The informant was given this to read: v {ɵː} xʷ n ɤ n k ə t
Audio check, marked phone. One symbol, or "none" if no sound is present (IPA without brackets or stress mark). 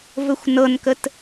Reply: ɵ